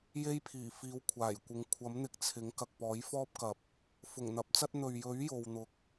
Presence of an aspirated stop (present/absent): present